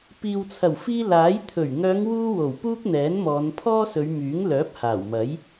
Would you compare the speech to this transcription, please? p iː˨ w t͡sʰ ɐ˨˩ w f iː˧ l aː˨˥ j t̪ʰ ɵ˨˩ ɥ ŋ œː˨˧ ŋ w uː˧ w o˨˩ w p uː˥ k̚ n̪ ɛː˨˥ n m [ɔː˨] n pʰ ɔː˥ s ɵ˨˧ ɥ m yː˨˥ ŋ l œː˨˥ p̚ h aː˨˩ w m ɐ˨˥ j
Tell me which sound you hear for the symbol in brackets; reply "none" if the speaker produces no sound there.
ɔː˨˧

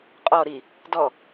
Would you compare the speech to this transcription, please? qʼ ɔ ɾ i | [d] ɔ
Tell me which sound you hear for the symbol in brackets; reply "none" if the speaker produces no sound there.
d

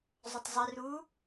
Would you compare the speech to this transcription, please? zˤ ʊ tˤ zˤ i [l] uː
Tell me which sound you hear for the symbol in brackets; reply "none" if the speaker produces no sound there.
r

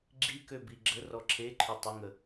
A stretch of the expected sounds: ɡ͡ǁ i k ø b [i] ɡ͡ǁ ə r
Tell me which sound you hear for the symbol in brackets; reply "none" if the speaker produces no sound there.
i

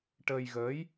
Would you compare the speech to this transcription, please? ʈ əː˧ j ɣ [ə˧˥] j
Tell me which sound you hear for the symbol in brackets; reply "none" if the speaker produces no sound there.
əː˧˥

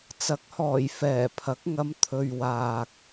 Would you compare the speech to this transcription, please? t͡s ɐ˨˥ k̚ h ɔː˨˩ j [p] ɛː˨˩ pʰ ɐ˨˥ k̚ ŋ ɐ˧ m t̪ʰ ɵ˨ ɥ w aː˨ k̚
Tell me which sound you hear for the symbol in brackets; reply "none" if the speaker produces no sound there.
f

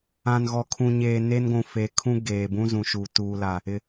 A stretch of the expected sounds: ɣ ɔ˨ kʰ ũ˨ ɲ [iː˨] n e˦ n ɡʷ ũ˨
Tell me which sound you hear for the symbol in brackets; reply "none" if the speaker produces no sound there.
eː˨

